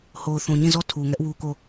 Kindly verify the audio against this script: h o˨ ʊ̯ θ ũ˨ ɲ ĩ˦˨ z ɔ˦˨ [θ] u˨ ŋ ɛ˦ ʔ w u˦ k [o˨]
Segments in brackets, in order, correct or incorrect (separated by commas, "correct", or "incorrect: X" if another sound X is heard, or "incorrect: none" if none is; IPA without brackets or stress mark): incorrect: tʰ, incorrect: o˦˨